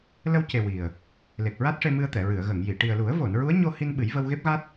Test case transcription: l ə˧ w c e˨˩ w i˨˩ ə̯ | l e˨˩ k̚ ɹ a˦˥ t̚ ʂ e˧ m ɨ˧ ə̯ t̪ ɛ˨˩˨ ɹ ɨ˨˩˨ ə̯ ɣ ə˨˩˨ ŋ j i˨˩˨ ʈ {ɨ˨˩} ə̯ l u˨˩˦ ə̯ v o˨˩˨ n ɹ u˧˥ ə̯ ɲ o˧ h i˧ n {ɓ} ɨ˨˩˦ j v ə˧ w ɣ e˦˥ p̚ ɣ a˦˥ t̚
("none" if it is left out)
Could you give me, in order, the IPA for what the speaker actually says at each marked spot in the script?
i˨˩, ɓ

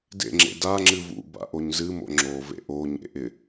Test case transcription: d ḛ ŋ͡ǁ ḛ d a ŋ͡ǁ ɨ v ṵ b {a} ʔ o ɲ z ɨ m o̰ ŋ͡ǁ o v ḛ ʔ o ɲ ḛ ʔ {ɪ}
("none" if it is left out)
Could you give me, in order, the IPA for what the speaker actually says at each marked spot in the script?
a̰, ɪ

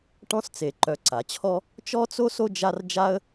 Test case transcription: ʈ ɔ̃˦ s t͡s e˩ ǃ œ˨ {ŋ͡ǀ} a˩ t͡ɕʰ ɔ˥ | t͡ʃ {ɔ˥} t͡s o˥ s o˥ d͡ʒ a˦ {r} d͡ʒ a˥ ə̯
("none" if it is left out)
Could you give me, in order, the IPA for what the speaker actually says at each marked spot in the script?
ǀ, ɔ˥, r

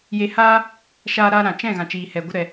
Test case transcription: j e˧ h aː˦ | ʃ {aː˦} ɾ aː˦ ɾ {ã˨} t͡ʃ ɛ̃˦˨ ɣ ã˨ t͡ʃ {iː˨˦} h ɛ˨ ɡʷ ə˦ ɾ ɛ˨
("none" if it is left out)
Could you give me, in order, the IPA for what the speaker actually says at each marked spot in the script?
aː˦, ã˨, iː˨

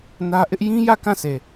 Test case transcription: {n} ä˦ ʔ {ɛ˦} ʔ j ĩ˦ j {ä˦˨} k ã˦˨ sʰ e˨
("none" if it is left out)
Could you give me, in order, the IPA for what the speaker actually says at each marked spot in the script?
n, ɪ˦, ä˦˨

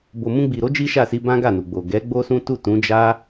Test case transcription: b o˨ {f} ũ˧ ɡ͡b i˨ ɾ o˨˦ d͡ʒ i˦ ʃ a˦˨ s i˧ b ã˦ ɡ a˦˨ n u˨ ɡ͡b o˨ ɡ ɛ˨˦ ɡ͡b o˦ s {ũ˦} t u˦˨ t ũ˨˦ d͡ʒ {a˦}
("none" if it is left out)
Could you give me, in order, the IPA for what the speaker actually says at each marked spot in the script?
m, ũ˦, a˦

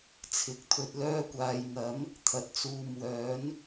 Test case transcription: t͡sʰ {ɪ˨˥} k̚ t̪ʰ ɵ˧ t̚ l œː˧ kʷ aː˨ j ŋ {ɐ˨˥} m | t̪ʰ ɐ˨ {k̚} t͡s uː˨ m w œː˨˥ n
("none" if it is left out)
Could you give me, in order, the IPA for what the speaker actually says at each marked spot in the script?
ɪ˨˥, ɐ˨˥, t̚

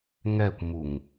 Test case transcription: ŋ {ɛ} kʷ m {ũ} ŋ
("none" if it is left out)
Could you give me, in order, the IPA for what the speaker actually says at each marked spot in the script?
ɛ, u

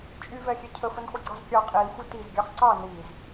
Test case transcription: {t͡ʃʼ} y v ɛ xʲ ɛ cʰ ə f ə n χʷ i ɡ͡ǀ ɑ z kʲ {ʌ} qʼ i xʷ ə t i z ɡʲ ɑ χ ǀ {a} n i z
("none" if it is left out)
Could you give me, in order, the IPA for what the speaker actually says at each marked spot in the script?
t͡ʃʼ, ɑ, ɑ

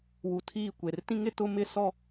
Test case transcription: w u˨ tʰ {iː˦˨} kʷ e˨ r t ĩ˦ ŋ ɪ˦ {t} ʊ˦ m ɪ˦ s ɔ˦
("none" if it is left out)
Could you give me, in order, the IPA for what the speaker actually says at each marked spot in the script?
iː˦˨, t

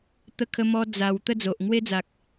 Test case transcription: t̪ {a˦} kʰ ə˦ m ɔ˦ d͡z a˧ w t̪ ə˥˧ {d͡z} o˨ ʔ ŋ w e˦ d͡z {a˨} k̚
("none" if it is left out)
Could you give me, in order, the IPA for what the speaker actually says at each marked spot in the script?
ə˦, d͡z, a˨

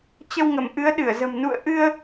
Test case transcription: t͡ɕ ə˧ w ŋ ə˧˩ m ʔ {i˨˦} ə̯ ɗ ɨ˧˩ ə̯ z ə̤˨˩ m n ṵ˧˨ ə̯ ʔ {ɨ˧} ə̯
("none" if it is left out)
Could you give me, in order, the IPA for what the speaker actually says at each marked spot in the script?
ɨ˨˦, ɨ˧

